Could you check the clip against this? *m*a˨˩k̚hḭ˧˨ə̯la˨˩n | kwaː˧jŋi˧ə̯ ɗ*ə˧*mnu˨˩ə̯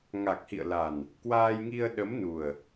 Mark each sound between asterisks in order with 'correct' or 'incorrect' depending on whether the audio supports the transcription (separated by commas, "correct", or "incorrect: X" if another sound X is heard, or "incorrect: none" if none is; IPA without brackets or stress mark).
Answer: incorrect: ŋ, incorrect: ə˨˦